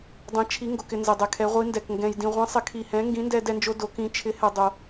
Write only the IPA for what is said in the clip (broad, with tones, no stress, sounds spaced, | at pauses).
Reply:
dˤ ɛ̃˧˥ t͡ʃʰ i˧˥ ŋ ɡ o˧ k ɪ˧ n z ɪ˧ dˤ ɛ˧ kʰ ɛ˧˥ ʁʷ i˧˥ n d ɛ˧ k ŋ ɡ ɛ̃˧ j d ĩ˧ ʁʷ ĩ˧˥ sˤ ɪ˧˥ kʰ i˧ h ɛ̃˧˥ ŋ ɡ ĩ˧˥ n d ɛ˧ d ɛ˧ n d͡ʒ o˧ d o˧˥ k ĩ˧˥ t͡ʃʰ ɪ˧˥ h ɛ˧ dˤ o˧